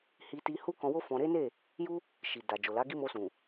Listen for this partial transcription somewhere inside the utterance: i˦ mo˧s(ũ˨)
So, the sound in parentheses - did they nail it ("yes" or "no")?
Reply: yes